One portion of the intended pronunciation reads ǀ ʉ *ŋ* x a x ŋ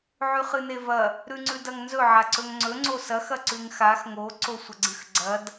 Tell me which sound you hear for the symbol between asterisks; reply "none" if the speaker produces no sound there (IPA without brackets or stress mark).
ŋ